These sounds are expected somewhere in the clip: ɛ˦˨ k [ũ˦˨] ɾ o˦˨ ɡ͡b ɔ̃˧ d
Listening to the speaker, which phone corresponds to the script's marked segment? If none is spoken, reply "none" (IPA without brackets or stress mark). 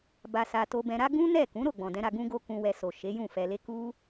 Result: ũ˨˦